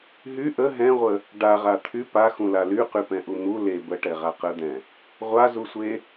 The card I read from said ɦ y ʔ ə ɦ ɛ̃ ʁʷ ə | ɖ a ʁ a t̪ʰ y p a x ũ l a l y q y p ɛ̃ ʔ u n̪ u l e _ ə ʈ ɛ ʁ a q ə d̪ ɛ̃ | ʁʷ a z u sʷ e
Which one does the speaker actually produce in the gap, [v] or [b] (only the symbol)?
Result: b